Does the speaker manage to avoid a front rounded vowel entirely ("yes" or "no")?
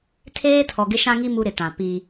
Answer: yes